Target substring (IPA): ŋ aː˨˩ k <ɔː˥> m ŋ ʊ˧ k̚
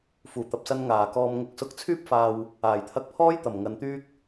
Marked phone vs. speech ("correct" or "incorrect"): incorrect